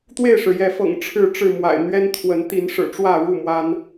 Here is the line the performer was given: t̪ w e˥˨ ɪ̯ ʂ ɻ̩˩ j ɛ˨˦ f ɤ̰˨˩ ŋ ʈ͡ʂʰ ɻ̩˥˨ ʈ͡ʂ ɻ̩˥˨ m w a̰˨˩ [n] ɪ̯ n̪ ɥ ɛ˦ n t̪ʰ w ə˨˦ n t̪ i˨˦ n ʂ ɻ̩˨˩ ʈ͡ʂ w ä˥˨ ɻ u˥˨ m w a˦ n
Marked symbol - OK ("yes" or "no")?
no